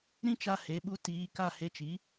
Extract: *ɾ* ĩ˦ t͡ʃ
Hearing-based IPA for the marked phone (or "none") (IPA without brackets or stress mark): ɾ